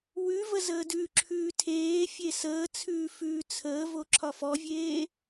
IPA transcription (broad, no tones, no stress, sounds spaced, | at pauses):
w ʉ v ə z əː d ʉ ǁʰ ʉː tʰ eː fʲ e s əː t͡sʰ ʉː f ʉː t͡sʰ əː v o ǁʰ ɒ f ɔ vʲ eː